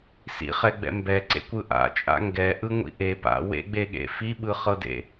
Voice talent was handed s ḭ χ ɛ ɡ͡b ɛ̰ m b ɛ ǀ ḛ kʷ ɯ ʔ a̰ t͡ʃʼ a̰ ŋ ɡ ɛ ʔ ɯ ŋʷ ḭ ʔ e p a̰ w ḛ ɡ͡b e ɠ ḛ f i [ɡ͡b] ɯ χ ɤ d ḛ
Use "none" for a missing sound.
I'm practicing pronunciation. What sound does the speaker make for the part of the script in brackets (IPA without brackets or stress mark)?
ɓ